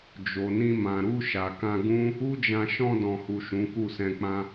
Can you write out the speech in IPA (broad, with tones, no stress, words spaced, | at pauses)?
d͡ʒo˨nĩ˧mã˨ ɾu˧ ʃa˨kã˧ɡũ˦ | u˦d͡ʒã˧ ʃɔ̃˧dɔ̃˨hu˨ ʃũ˨˦ku˦˨sɛ̃˧k͡pã˦